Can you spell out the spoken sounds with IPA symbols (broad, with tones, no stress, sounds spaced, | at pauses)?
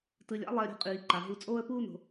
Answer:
t ɯ˧ lʲ a̰˥ lˠ ɛ˧ ə̯ ɾʲ o̤˧ qʼ iː˩ ǃ a˩ ɦ u˧ t͡sʼ oː˥ ə̯ p uː˥ n o̤˩